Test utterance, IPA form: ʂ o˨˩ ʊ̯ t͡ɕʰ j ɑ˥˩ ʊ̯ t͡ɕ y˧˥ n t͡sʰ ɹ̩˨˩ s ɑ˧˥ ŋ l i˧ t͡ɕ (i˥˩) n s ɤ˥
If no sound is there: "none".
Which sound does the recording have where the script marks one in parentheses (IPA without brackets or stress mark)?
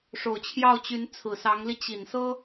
i˨˩